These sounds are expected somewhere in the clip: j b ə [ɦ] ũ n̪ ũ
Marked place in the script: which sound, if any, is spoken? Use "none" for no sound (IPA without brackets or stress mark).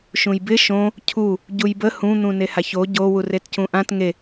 h